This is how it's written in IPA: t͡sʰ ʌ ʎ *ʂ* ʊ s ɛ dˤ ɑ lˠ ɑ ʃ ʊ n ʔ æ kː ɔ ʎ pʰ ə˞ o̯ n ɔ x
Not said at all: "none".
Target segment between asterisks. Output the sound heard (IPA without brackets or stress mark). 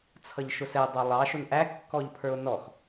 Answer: ʃ